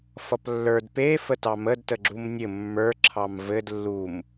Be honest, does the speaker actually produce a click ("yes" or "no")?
yes